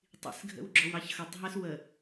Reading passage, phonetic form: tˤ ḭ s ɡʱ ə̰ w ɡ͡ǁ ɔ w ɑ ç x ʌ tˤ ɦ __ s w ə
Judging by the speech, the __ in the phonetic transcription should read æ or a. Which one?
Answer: æ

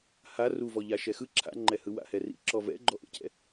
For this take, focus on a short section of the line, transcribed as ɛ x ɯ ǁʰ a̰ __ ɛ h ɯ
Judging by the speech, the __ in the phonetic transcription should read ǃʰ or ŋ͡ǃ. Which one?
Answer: ŋ͡ǃ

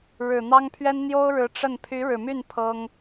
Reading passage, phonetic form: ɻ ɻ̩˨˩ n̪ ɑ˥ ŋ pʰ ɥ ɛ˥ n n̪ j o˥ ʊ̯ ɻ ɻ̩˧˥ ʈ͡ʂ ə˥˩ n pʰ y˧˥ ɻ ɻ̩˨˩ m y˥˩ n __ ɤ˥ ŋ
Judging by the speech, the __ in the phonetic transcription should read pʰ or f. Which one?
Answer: pʰ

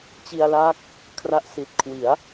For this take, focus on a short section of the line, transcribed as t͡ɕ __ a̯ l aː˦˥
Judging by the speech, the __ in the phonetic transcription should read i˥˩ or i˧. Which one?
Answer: i˧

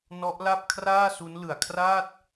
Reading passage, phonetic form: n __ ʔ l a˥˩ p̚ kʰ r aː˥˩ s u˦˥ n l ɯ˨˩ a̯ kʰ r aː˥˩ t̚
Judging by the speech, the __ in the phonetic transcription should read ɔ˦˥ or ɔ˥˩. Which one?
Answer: ɔ˦˥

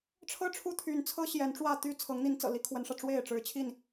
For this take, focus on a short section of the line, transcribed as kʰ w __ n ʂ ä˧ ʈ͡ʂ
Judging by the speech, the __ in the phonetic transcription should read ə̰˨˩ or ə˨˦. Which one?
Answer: ə˨˦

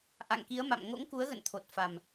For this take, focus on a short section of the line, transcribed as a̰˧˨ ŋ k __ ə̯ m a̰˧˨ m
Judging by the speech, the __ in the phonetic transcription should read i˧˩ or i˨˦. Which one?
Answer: i˨˦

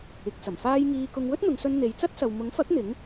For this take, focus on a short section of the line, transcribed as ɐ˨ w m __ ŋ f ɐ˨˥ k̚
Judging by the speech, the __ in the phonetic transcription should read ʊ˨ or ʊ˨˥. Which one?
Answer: ʊ˨˥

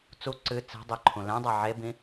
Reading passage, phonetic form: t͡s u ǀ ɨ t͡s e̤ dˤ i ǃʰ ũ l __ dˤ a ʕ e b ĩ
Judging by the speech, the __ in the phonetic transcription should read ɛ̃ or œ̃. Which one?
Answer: ɛ̃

